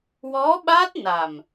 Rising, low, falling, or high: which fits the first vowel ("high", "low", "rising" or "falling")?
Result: rising